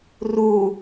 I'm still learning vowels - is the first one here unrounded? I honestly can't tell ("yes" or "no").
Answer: no